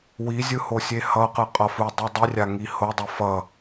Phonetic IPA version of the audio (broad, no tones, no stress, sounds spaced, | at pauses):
w i zʲ ɯ h o sʲ e h ʌ q ɯ qʼ ʌ f u dˤ i dˤ i rʲ a ŋ i h o dˤ o f ʌ